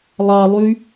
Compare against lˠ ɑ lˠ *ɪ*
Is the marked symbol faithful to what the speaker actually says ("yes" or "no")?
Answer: no